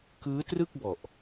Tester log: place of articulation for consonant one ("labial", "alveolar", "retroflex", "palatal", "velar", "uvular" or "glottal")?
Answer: velar